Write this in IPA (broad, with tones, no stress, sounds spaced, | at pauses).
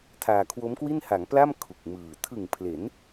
tʰ aː˧ kʰ w o˦˥ m k w i˥˩ n h a˩˦ ŋ p l a˥˩ m kʰ u˨˩ k̚ m ɯː˨˩ tʰ ɯ˨˩ ŋ pʰ l e˩˦ n